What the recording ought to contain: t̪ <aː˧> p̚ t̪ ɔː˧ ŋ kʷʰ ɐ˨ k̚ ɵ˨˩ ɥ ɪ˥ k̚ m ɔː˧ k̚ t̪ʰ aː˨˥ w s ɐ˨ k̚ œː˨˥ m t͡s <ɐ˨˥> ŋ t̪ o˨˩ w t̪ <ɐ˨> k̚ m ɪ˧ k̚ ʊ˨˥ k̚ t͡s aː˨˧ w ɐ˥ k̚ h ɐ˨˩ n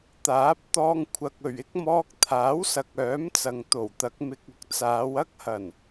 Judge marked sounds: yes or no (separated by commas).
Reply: no, no, no